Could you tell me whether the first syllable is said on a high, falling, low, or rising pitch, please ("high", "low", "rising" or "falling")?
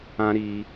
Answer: high